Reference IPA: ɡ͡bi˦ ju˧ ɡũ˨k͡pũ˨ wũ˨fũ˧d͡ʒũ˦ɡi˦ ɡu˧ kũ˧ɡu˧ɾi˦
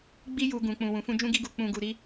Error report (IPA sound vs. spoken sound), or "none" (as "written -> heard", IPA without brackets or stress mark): k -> k͡p